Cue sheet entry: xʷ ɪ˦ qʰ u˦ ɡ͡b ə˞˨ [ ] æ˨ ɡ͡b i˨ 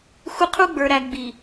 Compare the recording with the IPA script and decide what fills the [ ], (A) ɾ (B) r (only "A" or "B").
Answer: A